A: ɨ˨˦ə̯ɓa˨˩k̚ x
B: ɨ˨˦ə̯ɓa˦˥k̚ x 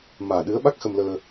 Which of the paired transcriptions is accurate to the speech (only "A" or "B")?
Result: B